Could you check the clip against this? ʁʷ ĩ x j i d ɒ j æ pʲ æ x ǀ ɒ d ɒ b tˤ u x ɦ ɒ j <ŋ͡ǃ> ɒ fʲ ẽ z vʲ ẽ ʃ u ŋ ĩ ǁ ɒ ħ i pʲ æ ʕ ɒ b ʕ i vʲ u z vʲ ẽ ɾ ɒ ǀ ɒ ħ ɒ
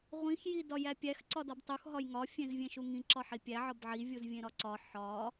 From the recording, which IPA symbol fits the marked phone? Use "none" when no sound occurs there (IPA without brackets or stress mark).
ŋ